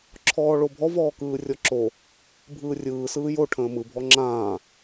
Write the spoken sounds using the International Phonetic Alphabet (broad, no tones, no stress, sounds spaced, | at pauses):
ǁʰ ɔː ɭ o bʱ ɔ v ɔː k ɯː rʲ ɔ ǁ o | bʱ ɯː rʲ ɯː s ɯː j o ʈʰ ə̃ː m ɯ bʱ ɔ ŋ͡ǁ ãː